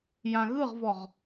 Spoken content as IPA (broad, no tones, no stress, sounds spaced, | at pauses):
j ã ɣ ɯ ʁ v ɔ ʁ